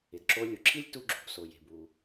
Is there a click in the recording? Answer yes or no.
yes